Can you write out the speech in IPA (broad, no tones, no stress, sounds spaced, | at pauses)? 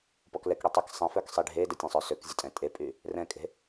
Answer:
p ɔ k l ɛ k ɽ y tˤ ə k sˤ ẽ f œ k sˤ i ɖʱ e d ə tʲ ə̃ sˤ œ s ø k zʲ ə tʼ ɛ̃ tʼ e pʼ y | r ɛ̃ kʼ e̤